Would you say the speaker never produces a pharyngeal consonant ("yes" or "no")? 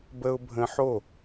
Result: no